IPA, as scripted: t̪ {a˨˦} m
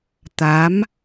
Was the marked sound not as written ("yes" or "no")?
no